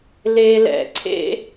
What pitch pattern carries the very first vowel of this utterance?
low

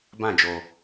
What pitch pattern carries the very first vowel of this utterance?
falling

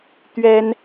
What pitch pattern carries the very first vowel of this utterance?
high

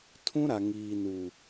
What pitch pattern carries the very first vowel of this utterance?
high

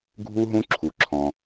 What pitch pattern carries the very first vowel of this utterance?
high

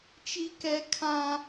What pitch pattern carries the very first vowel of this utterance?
high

